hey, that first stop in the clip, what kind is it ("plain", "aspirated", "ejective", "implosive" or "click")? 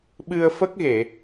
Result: implosive